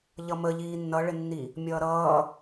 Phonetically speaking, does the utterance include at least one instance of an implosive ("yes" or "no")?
no